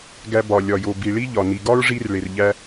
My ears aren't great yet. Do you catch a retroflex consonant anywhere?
yes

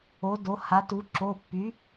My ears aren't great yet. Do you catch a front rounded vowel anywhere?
yes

